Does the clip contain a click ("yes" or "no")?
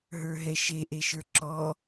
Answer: yes